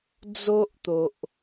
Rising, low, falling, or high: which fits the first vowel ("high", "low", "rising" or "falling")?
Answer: high